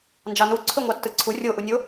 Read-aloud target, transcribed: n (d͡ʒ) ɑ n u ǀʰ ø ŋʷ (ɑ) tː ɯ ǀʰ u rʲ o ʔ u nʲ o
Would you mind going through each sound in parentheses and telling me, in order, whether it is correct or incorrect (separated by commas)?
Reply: correct, correct